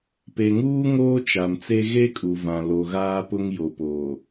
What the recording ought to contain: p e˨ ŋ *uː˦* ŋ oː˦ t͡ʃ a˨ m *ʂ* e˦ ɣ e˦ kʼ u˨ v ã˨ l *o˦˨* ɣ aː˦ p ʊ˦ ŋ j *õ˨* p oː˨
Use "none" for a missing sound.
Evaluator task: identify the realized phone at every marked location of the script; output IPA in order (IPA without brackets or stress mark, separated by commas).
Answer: uː˦, t͡s, o˨, o˨